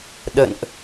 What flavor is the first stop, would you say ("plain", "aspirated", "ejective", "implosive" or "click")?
implosive